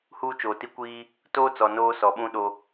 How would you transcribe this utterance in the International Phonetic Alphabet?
h uː˦ t͡ʃ oː˨ t i˦ kʷ iː˦ | t oː˦ t͡s ɔ˨ n oː˦ s ɔ˨ ɓ ũ˦ ɗ o˦

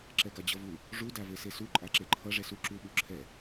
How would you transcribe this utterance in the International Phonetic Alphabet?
ǁ ɛ ɡ a d͡ʑ ʌ v u | ʐ u d a v e s e s u ǃʼ a ǁ e ǃʰ ʌ ʐ ɛ s u ǁ u ɓ u ǁʰ ɛ

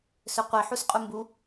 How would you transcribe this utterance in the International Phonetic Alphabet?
s ɵ qʷ i ħ u s qʼ u m b u

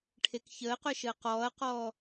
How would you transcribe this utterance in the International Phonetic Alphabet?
ʈʰ e k ç əː q œ ʃ əː q ɔː ɐ̯ q ɔː

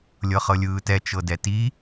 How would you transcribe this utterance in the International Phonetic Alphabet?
lʲ ɤ χ ɤ lʲ ɯː t ɛ t͡ʃ ɤ d ɛ t i

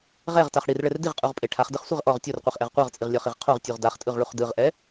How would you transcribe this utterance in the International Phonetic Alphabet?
ʁ ɛ ʁ t a χ ɽ i r ɭ ɛ r d i ʁ qʼ u ʁ pʼ e ʈʰ a χ d ɯ χ sʷ e ʁ ʔ ɔ ʁ tʲ o r qʷ i χ ʔ ɛ ʁ qʷ ɤ ʁ t͡sʼ i ʁ lʲ ɔ χ i ʁ qʰ o ʁ tʲ u ʁ d a χ tʼ ɯ ʁ ɭ u χ d ɯ ʁ ʔ ɛ

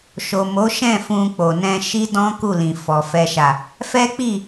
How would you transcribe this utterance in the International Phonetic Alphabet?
ʃ o˨ m o˨˦ ʃ ɛ̃˦˨ f ũ˧ k͡p o˨ n ɛ̃˧ ʃ i˦ d ɔ̃˦ k u˦˨ l ĩ˨ f ɔ˨ f ɛ˨ ʃ a˨ | f ɛ˦ k͡p i˦˨

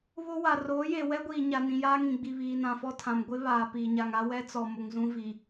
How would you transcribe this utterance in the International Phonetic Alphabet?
β o˦ w a˨ r oː˨˦ j e˨ w ɛ˦ ɡʷ iː˨ ɲ a˨ n ĩ˨ j aː˦ ŋ ĩ˨ ɡ͡b i˨ β iː˨ n ã˨ f ɔ˦ tʰ ã˨ m ɡʷ ɪ˦ β aː˨ p iː˨ ɲ a˨ ŋ a˦ w ɛ˦ t͡s ɔ˨ m ʊ˨ ŋ z ũ˦ v i˨

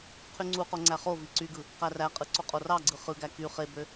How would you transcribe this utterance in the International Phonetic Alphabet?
qʰ y ŋ͡ǀ u q o ŋ͡ǀ æ χ o v i ǀ y ɡ ɯ | q æ r æ qʼ ɯ ǀ o qʼ o r ɑ ɡ͡ǀ ɯ χ ɯ ɡ æ k y χ e b ø

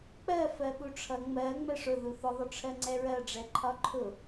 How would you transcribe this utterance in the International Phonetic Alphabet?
k͡p ɜ f ɜ ɓ u ʈ͡ʂʰ ʌ ŋ͡m ɜ ŋ͡m ɛ ʂ ʊ ð u θ ʊ ðˤ ʊ ʈ͡ʂʰ ɜ ŋ͡ǀ ɛ ɹ ɜ ɖ͡ʐ ɛ ǃʰ ɒ ǃʰ ʊ

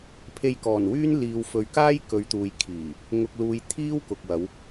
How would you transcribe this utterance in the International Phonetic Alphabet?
pʰ e˧ j k ɔː˨˩ n w yː˥ n l iː˨ w f ɵ˨ ɥ k aː˥ j k ɵ˨˧ ɥ t̪ uː˨ j kʰ iː˨˩ | ŋ ʊ˨ k̚ l uː˨ j t̪ʰ iː˥ w k ʊ˨ k̚ w ɐ˨˧ w

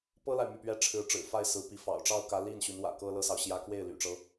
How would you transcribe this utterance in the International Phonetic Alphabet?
p ɤ˥ l a˨ ɪ̯ m y˥˩ p ɥ ɛ˥ ʈ͡ʂʰ ɻ̩˧˥ ʈ͡ʂ ɻ̩˨˩ f a˥˩ ɪ̯ s ɹ̩˧˥ p i˧˥ f ɑ̰˨˩ ʊ̯ ʈ͡ʂ ɑ˥ ʊ̯ k ä˧˥ l i˥˩ n ɕ y˧˥ n w ä̰˨˩ k ɤ˥ l ɤ˥ s ɑ˨ ʊ̯ ɕ j ä˥ k w e˥˩ ɪ̯ l y̰˨˩ ʈ͡ʂ ɤ˦

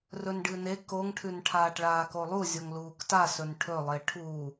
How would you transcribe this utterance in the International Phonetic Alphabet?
r ɵ n ɖ ɨ n e k o ŋ ʈʰ ʉ n ʈʰ aː ʈ ɭ aː k o lˠ u zʲ o ŋ l uː k t a s ɵ n ʈʰ ɵ lˠ e ʈʰ u

